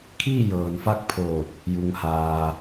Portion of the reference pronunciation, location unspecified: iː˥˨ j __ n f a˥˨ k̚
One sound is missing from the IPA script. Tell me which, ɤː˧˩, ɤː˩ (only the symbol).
ɤː˩